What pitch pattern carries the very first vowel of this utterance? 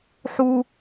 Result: high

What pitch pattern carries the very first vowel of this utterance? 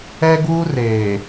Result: high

